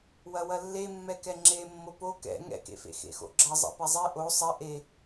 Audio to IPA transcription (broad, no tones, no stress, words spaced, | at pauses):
wɐwɐlːemːɛ kɛŋ͡ǁe mːopo kɛ̰ ŋɛ̰kḛfḛ xḛxo̰ɡ͡ǁɐ zˤɛ̰pɛzˤe ʔo sˤɛ ʔe